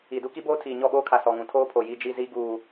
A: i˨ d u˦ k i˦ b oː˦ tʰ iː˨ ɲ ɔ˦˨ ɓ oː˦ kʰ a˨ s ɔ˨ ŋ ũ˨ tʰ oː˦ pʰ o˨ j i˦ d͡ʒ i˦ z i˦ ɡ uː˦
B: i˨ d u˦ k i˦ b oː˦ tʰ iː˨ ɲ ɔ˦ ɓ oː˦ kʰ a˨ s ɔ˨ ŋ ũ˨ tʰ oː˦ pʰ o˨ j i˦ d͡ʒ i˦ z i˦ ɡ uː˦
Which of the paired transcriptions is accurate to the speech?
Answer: A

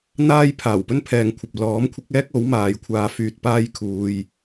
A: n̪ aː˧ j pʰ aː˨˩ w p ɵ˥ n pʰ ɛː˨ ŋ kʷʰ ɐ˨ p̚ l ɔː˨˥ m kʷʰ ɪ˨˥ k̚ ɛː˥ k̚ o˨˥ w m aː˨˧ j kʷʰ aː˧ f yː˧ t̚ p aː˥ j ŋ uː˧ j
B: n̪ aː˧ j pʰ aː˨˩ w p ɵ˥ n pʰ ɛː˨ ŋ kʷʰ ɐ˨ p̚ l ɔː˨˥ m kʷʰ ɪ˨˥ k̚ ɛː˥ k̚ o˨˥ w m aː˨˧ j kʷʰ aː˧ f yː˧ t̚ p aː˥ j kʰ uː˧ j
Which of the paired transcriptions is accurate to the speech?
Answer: B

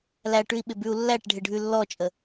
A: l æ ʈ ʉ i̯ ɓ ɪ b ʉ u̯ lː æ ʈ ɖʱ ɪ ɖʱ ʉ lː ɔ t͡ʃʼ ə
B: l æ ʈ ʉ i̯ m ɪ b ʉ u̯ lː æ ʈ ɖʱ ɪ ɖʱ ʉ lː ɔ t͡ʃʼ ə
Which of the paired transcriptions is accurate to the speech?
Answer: A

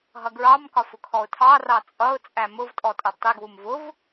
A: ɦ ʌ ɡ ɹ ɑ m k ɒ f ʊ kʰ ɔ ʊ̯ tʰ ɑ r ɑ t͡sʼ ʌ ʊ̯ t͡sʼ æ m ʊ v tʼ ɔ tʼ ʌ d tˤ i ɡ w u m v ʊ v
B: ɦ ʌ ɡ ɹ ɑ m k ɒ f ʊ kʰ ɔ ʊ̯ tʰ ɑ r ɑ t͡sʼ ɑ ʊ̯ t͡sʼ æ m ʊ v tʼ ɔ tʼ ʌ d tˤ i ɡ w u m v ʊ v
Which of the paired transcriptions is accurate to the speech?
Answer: A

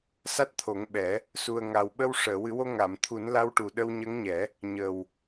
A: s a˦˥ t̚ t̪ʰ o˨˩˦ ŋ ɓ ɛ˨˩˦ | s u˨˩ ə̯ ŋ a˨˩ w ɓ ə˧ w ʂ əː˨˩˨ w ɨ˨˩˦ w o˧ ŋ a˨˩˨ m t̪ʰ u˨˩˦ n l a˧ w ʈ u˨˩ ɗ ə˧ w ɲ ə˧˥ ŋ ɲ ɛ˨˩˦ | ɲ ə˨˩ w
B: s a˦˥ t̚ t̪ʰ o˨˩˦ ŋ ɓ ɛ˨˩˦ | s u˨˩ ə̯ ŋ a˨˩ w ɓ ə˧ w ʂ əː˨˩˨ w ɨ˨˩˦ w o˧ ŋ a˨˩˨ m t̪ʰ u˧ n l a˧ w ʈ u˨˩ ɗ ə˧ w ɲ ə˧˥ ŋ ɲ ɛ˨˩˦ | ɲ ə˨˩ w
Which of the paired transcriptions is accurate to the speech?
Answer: A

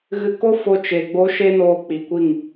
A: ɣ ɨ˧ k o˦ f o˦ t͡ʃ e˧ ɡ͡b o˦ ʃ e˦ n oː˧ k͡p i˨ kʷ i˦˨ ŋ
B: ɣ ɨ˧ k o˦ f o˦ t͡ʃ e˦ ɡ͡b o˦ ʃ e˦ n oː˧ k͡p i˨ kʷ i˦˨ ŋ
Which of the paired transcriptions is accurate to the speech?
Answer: A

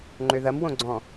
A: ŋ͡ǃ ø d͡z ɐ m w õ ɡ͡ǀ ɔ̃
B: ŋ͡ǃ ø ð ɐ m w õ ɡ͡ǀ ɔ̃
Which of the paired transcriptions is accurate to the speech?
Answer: B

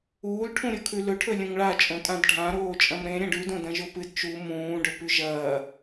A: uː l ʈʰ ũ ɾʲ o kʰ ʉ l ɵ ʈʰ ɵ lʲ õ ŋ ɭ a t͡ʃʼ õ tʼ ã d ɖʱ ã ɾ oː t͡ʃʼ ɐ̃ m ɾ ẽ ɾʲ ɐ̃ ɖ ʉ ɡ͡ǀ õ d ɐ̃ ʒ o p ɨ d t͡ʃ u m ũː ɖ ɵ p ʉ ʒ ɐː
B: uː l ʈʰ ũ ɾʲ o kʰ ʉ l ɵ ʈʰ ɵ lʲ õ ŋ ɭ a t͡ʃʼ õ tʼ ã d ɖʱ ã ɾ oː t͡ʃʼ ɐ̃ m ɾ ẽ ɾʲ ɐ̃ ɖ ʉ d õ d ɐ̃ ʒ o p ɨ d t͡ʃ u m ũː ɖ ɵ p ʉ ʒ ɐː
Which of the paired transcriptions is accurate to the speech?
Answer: B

